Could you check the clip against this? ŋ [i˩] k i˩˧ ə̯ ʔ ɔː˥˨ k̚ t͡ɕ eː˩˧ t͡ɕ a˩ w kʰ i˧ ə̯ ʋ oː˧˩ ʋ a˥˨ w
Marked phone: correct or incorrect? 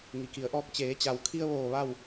correct